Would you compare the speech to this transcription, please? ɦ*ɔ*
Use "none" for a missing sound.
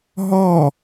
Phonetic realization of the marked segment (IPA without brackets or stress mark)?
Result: ɔ